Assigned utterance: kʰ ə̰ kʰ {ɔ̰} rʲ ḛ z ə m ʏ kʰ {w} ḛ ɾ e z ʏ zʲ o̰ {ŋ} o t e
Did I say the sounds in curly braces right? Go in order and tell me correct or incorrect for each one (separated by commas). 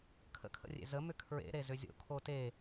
incorrect, incorrect, incorrect